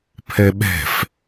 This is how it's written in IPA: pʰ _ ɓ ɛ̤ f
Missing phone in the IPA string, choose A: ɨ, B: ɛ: B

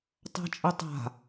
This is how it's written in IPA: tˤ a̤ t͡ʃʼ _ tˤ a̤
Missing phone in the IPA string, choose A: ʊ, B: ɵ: B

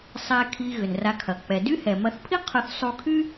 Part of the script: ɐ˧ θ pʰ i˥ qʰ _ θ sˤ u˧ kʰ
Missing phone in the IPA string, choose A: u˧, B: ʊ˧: B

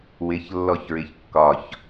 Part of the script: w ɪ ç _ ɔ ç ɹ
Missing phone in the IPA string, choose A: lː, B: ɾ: A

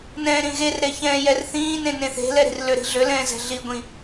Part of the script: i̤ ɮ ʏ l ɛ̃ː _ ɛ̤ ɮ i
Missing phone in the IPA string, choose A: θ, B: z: B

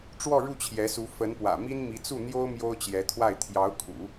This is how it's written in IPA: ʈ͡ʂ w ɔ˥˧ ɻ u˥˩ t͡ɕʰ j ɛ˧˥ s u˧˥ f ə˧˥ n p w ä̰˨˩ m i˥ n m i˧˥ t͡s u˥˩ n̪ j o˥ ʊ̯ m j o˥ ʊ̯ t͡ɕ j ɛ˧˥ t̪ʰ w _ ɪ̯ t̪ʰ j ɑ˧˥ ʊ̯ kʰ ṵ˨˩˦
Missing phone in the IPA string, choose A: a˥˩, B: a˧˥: A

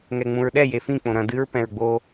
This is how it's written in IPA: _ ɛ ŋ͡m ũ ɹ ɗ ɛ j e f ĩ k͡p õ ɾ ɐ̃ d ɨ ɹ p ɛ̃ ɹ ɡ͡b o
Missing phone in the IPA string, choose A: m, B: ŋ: B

